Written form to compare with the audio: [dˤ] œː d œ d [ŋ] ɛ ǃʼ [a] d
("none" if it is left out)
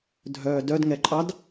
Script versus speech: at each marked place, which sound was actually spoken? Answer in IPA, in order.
dʱ, ŋ, ɑ

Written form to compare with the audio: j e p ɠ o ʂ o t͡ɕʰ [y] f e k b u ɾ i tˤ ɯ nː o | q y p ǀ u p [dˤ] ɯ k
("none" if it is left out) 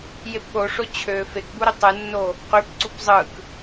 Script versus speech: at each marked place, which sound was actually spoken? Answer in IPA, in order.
ø, zˤ

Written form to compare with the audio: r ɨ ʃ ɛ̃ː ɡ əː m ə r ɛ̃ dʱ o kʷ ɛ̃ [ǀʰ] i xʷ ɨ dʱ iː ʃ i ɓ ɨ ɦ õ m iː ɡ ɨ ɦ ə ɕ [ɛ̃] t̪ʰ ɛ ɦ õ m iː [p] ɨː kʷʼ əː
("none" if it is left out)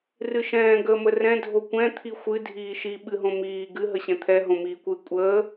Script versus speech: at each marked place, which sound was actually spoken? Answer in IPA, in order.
t̪ʰ, ɛ̃, kʷ

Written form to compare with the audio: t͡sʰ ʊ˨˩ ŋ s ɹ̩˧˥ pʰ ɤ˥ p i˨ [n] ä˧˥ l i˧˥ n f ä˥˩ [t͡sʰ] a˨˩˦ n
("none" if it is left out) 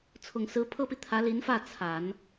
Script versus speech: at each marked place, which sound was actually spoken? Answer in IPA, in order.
t̪ʰ, t͡sʰ

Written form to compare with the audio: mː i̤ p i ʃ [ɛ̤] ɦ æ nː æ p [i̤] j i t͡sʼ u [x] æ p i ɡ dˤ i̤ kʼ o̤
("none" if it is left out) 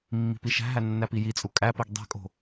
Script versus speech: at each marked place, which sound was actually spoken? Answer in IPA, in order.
æ̤, i, kʼ

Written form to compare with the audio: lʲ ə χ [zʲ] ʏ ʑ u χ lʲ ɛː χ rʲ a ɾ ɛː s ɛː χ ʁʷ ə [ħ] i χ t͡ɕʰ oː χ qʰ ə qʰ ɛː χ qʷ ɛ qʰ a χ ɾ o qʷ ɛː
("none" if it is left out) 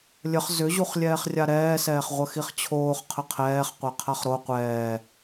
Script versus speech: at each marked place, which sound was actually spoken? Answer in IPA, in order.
z, x

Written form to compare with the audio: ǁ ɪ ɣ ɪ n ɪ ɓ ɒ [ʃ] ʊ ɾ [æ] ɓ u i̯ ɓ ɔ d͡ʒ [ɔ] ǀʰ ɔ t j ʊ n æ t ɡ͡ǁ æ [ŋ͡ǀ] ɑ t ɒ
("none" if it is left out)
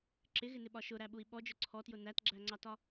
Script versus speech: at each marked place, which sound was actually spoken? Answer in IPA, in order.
ʃ, æ, ʊ, ŋ͡ǀ

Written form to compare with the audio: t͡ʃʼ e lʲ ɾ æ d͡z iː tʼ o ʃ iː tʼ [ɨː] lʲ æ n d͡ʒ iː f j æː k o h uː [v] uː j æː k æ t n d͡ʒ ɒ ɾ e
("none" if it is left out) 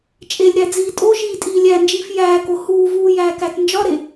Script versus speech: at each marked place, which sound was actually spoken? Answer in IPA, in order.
iː, v

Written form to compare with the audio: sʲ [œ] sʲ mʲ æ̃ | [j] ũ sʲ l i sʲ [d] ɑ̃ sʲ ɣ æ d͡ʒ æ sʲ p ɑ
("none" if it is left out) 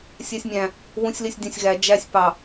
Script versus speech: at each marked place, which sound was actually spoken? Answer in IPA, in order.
æ, w, dʲ

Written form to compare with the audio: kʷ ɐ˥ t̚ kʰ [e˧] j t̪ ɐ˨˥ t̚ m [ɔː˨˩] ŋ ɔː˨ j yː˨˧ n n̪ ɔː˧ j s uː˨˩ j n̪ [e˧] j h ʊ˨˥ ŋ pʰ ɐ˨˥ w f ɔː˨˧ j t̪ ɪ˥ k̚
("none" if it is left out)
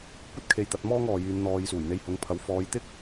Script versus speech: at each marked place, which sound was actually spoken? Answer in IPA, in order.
e˧, ɔː˥, e˧

